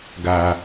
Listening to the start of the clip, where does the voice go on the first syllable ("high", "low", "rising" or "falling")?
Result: low